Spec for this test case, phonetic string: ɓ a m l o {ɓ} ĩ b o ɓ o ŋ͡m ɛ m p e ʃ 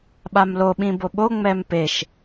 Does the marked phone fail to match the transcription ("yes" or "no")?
no